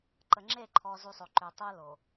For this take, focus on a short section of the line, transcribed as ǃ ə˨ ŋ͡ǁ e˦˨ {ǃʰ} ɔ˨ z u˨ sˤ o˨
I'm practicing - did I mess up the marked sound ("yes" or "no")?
no